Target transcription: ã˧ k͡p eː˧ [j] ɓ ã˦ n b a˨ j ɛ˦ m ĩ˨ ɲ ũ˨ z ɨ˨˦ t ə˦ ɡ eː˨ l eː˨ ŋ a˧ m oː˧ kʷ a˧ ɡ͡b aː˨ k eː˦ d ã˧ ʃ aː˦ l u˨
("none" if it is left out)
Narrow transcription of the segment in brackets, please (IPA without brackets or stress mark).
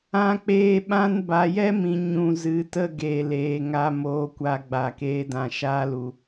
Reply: none